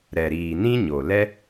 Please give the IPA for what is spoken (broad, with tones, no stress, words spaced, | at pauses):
ɾɛ˨ɾiː˨nĩ˦ ɲo˨ lɛ˦